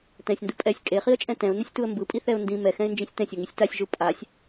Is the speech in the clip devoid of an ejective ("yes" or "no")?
no